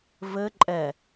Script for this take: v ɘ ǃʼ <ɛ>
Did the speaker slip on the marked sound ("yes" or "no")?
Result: no